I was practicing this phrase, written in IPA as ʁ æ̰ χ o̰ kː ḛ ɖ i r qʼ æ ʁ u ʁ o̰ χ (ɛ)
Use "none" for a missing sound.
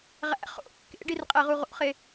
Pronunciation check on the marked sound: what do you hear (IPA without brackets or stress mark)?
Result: e